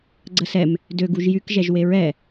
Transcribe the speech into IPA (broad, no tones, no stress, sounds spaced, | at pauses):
ɡ͡ǀ ə s ɛ m | d ø ɡ u ʒ j y k ʒ ɛ ʒ w e ɹ ɛ